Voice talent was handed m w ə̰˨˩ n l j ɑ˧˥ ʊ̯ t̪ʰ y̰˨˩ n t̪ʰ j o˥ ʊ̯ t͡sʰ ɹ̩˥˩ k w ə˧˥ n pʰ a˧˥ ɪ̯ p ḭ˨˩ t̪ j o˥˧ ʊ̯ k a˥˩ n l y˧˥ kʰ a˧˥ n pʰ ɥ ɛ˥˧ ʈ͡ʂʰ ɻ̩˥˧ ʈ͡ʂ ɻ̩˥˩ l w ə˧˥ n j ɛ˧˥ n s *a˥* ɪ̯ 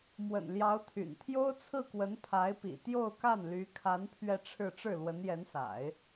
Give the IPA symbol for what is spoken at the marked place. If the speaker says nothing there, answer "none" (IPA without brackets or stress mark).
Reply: a̰˨˩˦